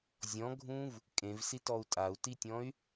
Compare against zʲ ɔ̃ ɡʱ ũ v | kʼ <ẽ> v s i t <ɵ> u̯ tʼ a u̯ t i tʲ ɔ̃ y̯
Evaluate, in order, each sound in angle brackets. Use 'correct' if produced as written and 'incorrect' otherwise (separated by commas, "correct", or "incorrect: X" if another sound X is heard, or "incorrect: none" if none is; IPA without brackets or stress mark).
correct, incorrect: ɔ